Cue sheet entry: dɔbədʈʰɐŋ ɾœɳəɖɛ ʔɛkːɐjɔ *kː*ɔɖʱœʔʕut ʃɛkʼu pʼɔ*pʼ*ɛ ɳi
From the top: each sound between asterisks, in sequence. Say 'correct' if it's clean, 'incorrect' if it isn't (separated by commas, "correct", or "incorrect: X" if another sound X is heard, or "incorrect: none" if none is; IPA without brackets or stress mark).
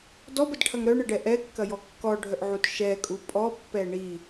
correct, incorrect: pː